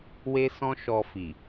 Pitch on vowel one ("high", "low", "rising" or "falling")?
high